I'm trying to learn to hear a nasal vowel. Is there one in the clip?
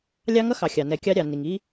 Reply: no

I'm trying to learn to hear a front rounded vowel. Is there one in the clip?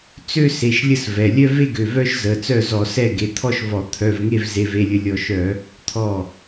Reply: yes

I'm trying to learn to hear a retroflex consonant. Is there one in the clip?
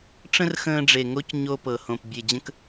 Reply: yes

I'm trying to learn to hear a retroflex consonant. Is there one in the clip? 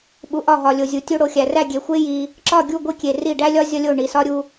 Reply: yes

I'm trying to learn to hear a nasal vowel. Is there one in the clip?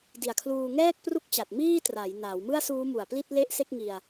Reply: no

